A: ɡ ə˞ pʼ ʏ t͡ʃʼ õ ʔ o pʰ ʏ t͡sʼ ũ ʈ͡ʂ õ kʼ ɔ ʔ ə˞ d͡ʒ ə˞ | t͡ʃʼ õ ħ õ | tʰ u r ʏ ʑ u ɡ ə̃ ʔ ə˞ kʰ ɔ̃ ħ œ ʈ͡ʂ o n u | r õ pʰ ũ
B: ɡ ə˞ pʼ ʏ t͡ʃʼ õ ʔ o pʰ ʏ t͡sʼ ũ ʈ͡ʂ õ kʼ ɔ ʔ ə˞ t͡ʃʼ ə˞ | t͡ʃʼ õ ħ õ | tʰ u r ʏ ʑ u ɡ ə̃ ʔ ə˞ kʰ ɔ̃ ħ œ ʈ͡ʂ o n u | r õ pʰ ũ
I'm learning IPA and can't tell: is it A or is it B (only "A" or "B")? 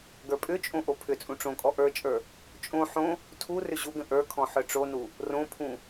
B